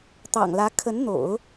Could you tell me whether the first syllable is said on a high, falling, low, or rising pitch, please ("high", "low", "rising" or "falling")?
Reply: low